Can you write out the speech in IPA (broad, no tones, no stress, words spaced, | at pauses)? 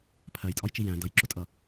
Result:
pʰɜjtʼɒjt͡ʃi jæ̃ dʌjǁʊtʼʌ